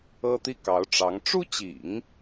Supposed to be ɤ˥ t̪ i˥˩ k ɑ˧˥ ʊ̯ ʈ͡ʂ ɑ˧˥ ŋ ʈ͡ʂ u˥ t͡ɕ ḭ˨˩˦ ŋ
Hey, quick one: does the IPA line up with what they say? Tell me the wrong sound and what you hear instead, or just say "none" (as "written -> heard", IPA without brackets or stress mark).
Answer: none